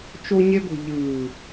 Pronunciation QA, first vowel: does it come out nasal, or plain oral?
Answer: oral